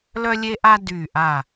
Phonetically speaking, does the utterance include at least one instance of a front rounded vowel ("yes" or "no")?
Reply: yes